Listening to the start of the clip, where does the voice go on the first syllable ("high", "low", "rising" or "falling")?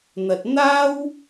low